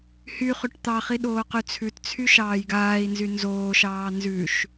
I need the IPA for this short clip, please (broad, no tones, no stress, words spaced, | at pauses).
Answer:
hyχʉʈ t̪ɑχi ɗoːqyt͡sʰʉtt͡sʰy ʃɑːjɡaːi̯nzy nzoːʃɑː nzʉʃ